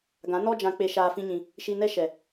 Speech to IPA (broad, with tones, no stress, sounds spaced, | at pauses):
ɡ ã˨˦ n ɔ˦ d͡ʒ ã˧ k͡p e˧ ʃ aː˧ f ĩ˦ ɲ ĩ˧ | ʃ i˧ n ɛ˦ ʃ ɛ˨